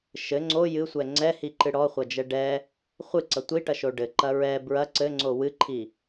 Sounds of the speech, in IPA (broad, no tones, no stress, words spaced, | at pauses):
ʃɘ ŋ͡ǀo jɨsʷɛ ŋ͡ǀɛhiǃɨ ɽɔχʷɐd͡ʒɛ ɖɛ | χʷɨǀɐ tʷiʈɐʃo ɖɘǃɐ ɹɛ bɹɐ ǀɘŋ͡ǀo wɨǃʰi